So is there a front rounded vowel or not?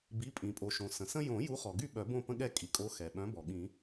yes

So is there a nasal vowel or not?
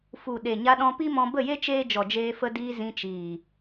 yes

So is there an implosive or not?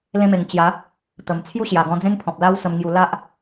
no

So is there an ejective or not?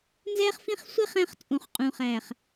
yes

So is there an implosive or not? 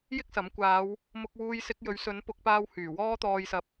no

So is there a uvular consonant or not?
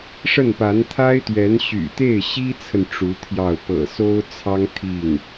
no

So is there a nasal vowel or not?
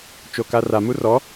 no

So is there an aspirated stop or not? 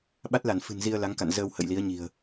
no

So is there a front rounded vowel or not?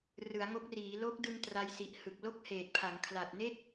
no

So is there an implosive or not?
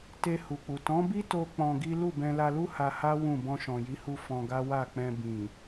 no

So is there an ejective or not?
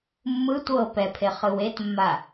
no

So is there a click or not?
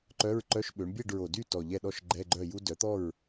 yes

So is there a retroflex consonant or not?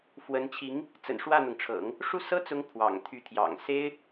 yes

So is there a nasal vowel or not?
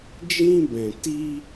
yes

